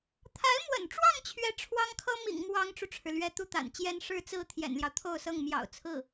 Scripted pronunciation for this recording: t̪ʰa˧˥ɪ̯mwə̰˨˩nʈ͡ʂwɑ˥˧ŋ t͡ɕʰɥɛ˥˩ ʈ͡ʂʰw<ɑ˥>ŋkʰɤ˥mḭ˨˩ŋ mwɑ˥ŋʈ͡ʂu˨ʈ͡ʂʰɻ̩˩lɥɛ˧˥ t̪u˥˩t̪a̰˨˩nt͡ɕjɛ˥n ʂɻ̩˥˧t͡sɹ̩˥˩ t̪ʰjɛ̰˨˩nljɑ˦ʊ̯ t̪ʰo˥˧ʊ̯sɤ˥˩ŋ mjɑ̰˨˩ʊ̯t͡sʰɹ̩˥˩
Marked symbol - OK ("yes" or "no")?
yes